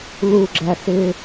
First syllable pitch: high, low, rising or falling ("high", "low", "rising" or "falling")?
low